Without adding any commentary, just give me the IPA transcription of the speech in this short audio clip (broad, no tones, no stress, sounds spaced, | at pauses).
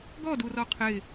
ɡ ɔ d u r ɔ qʰ ɪ